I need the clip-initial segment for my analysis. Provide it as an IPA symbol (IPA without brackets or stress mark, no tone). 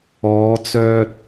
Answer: ɔː